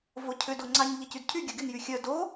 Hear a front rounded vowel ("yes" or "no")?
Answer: yes